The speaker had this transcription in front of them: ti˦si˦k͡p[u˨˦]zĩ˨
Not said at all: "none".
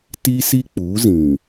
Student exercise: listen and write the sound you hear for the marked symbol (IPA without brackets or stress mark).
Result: u˨˦